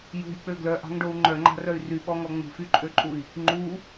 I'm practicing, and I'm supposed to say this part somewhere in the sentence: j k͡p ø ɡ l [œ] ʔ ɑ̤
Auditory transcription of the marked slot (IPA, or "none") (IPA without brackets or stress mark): œ